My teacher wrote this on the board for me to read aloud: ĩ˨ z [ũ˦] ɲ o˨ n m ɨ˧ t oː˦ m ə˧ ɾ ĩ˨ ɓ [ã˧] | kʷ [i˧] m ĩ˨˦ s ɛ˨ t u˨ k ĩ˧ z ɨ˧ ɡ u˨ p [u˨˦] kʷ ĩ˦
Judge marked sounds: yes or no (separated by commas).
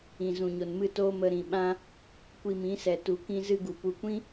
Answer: no, yes, yes, yes